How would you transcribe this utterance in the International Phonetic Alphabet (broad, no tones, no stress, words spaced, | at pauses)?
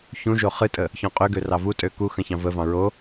çũʒo χɨtʼə | çɔ̃qʼøɡø rɑvutʼø ku xə̃çɑ̃vəvɑ̃ ɹo